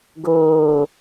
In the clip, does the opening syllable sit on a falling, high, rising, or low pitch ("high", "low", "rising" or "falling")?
falling